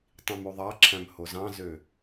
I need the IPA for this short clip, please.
tˤĩmuðˤɑǁʰæ̃m hozɑ̃zø

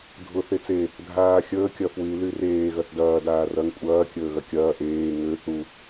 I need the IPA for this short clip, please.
dʱʊ θet͡se | dʱaːxʲəː kʲɐfwy lyreː ɣɐθdɐː daːrɐŋ kʷʼɐː kʲəːɣɐkʲɐː ʔeː ŋø θu

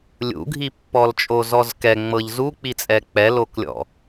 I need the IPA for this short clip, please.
lʲṵɡʱipːɔlt͡ʃʼo zɔzkɛ ŋ͡mɤʎzuk͡pit͡sʼɛ k͡pɛloklʲɔ̰

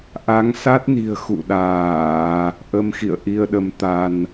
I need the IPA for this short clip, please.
ʔa˨˦ŋ sa˦˥t̚ni̤˨˩ə̯ xṵ˧˨ɗaː˧˩˨ | ʔə˧mxḭ˧˨ə̯ʔi˧ə̯ɗə˨˦m t̪a˧n

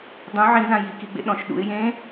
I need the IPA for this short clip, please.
dˤũ ʕĩzã jikiɡ͡bḛ ɗɔ̃ʃ ɗṵɪ̯ jẽ

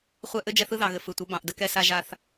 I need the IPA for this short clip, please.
χʷɛ˦ ʔɘ˦d͡ʒɛ˦θ ɯ˦ðɑ˨ɣɘ˨ fɯ˨tʷə˨˦ bɑ̃˨ʔ də˦kɛ˦sa˦ ʒa˦θ

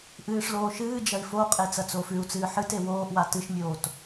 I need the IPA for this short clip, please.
ʔɨːʂloː ʃɨː d͡ʒɐi̯foqʼe t͡sɐt͡soːfʉu̯t͡sɨː ħɨte woːʔwa tɨʃmʲoːt

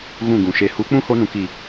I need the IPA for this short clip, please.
ɣũ˦˨ɡũ˨ʃe˧ hu˨˦k͡pũ˦ho˧nũ˨k i˨

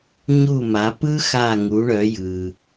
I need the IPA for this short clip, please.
ɲu˥˩ma˩˥ pɯ˥ xa˥˩ ŋu˩˥ɳœ˩˥ jɯ˩

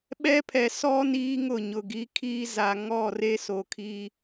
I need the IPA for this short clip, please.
ɓɛ˦pʰɛ˨ sɔ˦ niː˦ŋʊ˦˨ɲʊ˨ ɡi˨˦kʰiː˦za˨ ŋɔ˦˨re˦so˨kʰi˦

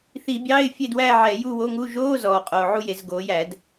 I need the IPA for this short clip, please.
θi˧˩˧bʲɑ˧˥˧ɪ̯fʲe˥˨dwæ˥˨ ʕɛ˧˩˧ju˥˨wo˧˥˧ŋu˧˥˧ ʒoː˧˥˧ zɔː˨˩ qʼoː˨˩ʕu˥˨je˧˩˧z ɡoː˩˧jæ˧˩˧d

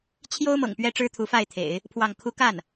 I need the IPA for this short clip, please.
t͡ɕʰjo˥ʊ̯mɤ̰˨˩ŋ pɥɛ˥ʈ͡ʂɻ̩˥t̪ʰu˧˥fa˥˩ɪ̯ t̪ʰḛ˨˩˦ɪ̯ | pʰwɑ˥˩ŋ kʰu˥ ka˥˩n

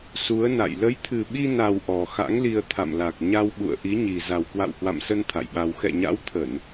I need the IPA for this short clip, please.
su˨˦ə̯na̰˧˨j lə˨˦jt̪ʰɨ˨˩ɓi˧na˨˩w ʔɔ˨˩xa̰˧˥ŋli˧ə̯ t̪ʰa̰˧˨mla˨˩k̚ ɲa˧w ɓṵ˧˨ə̯ ʔi˨˦ɲi˨˩ za˨˩wkwa̰˧˨whwa̰˧˨msə˧n t̪ʰa̰˧˨jɓa˧w xɛ̰˧˨ɲa̰˧˥wt̪ʰə˧˩˨n

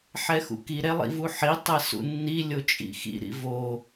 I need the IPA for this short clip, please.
ħɛxṵki ɾɛlˠḭvuħi tˤɛsṵnːi lʲot͡ʃʼḭxḭ ɾḭvo

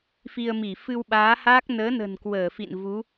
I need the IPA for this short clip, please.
fi˧ə̯mi˧˩ fɨ˧wɓaː˨˦haː˦˥k̚ nəː˨˦nə̤˨˩n kwəː˧˩fḭ˧˨n vu˨˦

